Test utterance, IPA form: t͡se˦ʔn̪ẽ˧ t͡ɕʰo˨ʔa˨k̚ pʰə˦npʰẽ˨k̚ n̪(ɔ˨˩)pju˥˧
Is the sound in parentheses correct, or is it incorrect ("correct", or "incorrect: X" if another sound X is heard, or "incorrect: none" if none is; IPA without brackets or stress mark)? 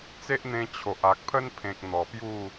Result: correct